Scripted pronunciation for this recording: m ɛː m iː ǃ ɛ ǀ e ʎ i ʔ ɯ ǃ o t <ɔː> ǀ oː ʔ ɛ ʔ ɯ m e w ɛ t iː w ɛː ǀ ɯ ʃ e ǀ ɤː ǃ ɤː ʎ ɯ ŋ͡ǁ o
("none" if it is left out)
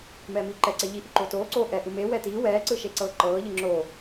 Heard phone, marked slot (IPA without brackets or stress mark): oː